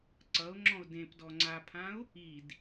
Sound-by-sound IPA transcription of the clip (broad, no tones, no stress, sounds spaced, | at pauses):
ǀ ʌ ʊ̯ ŋ͡ǁ ɔ̃ ʊ̯ d ẽ p d ɔ ŋ͡ǀ a pʰ ã ʊ̯ | i d